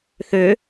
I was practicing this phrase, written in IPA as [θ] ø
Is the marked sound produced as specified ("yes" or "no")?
yes